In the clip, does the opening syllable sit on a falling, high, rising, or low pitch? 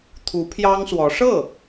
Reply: rising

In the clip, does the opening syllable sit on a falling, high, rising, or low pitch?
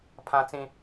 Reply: high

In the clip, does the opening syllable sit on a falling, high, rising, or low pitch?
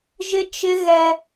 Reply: high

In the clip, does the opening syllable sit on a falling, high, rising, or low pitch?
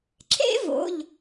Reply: high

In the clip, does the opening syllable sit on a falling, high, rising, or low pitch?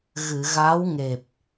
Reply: low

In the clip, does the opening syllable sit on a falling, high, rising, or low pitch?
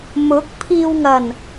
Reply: rising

